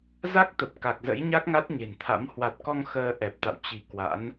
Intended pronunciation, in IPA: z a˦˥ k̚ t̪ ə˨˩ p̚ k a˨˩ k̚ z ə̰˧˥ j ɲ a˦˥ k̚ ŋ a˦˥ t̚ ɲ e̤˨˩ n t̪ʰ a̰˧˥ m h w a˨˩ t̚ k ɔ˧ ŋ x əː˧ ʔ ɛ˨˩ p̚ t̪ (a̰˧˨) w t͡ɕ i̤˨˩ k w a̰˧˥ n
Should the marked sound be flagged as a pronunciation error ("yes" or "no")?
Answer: no